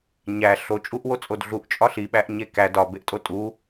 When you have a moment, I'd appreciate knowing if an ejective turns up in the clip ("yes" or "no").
yes